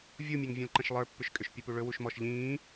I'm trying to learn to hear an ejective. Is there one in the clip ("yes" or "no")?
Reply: yes